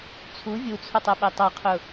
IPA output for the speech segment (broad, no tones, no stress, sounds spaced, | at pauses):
t͡sʰ u vʲ u t͡sʰ ʊ tˤ ɛ ɓ ɛ tˤ ʌ qʰ ʊ